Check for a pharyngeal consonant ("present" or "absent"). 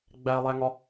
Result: absent